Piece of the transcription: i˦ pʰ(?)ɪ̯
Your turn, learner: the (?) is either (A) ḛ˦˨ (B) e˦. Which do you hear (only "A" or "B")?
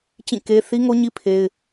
B